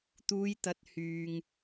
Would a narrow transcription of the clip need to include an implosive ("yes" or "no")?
no